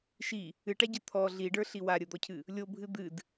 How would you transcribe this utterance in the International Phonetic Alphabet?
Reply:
ʃi | ɨʈa ɟət̪ʰɔ ɮiɖə˞ɬi waɾʲəd̪ɔcʰɨ | lʲobʱɨ d̪ɨd

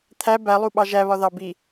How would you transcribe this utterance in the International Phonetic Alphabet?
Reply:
t̪ʰæ bælˠuɓɑ ʒæβɒðɑ bi

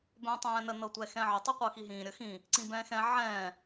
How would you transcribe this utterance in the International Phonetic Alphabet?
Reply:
bɛ̃ːtˤɛ̃ːnə nɤtʷɛxɛ̃ːʕə tˤiqʷɤxiɦĩː ɾʲəxĩ | ǀĩbɛ̃ːxɛ̃ ʕɛ̃ː

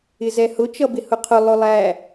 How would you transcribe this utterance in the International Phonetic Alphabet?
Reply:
ɪzɛhʊ t͡ʃʌbɪhʊqʰʊ lˠʊlˠæ

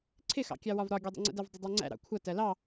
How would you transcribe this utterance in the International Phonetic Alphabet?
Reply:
ǀʰɪxɑ̰kʲɑwɒv ɾɒɡʲɜdˤə̰ŋ͡ǀə̰ dɜvdˤʌdˤɜŋ͡ǀæ̰ ɾɑ̰kʷʰʌ tɜlɑ

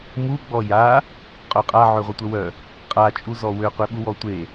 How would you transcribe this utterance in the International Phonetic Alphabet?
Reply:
mu ɡ͡bɔja | qʼœqʼa ʕøʁʷətʷəwœ | qʼa t͡ʃʼuzɔwø qʷeɓuwɔtʷe

